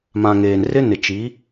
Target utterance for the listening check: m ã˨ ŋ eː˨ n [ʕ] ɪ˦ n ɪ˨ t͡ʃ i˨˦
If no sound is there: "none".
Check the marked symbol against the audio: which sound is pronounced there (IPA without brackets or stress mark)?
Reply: r